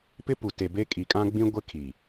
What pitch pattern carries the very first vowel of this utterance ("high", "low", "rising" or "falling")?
high